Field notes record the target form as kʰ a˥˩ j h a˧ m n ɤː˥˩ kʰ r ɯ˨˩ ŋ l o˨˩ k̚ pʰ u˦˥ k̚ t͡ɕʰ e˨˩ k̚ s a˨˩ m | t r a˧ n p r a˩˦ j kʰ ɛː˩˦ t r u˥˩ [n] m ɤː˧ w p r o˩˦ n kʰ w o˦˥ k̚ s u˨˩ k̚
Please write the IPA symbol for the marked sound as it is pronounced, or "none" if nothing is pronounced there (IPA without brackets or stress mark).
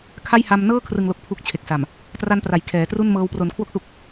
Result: n